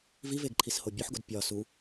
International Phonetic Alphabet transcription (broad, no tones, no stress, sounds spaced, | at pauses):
v i v e ɡ ǃʰ i s h o bʲ o ħ ɡ o d pʲ ɒ s u